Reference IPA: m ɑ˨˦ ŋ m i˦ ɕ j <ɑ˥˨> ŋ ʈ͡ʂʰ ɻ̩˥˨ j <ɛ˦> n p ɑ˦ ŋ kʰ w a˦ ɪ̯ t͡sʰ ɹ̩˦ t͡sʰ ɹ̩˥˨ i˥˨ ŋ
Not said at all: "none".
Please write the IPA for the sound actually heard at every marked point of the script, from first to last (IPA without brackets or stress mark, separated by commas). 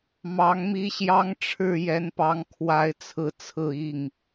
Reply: ɑ˦, ɛ˦